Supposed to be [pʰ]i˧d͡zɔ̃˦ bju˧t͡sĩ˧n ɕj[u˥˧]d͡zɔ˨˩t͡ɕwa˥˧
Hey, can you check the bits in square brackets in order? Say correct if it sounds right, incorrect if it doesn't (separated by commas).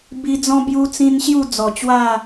incorrect, correct